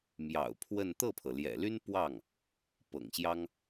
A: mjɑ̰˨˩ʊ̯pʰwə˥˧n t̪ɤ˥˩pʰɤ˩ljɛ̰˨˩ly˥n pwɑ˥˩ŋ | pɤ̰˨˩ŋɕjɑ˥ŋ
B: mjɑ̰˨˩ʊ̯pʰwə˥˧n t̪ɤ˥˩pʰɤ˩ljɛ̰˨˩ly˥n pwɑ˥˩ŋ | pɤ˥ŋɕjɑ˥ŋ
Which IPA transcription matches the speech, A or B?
A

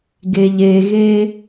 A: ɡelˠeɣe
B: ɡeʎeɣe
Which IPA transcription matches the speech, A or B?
B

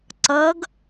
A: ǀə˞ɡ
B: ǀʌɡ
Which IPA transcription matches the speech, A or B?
B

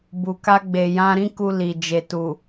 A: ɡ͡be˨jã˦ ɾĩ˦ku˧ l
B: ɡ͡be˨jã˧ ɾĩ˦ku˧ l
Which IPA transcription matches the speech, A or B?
B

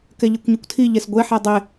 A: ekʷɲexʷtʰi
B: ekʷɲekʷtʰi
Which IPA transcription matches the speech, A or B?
B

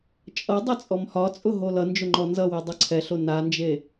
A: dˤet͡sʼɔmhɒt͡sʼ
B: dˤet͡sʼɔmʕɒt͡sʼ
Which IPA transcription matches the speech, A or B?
A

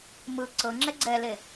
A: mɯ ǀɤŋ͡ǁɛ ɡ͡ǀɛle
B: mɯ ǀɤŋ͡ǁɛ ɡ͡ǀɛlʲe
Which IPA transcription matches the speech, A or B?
A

